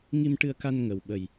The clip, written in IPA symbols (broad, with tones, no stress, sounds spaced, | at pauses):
ŋ i˧ m ʈ ɨ˧ ə̯ k a˧ n ŋ ə˨˩ w ɓ ə˨˩ j